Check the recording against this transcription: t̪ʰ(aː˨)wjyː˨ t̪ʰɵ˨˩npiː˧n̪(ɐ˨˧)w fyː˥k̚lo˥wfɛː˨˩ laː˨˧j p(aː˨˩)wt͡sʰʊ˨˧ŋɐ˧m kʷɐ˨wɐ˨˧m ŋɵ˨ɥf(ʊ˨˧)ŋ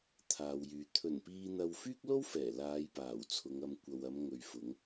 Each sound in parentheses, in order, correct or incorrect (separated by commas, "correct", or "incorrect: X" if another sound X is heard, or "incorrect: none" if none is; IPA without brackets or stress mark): correct, incorrect: ɐ˧, correct, correct